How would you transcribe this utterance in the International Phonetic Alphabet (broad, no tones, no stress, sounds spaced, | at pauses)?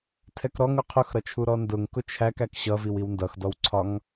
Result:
tʰ ɛ k ɾ ɔ ŋ ʊ qʰ ʊ x ɾ ʌ t͡ʃʰ u ɾ ɔ n d ʊ ŋ k ʊ t͡ʃʰ æ k æ k ɕ ʌ v i w i w n d ʌ x d ɔ w ǀʰ ɒ ŋ